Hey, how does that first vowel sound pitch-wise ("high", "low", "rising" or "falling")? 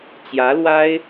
rising